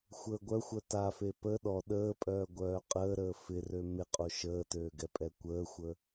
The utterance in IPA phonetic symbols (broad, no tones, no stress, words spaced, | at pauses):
xʷəːɡʷœxʷœ tafe pə ɗɔ ɗəːpʼœː ɡʷœːqʼəːɾəː fɪrø mɪqʼo ʃəːtøːɡɛ pʼɛkʷəːxʷə